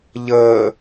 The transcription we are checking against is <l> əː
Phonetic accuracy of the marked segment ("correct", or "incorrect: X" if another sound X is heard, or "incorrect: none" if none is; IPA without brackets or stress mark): incorrect: ʎ